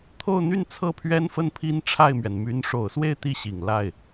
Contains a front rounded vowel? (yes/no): yes